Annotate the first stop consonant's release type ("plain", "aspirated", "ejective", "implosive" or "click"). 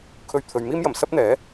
aspirated